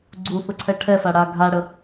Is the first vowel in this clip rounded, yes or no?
yes